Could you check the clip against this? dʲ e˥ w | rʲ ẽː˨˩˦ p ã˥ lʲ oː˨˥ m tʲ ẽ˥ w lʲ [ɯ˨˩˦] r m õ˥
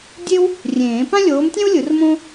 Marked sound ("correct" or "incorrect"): correct